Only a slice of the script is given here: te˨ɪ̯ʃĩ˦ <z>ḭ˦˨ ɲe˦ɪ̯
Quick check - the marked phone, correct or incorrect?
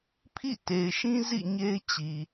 correct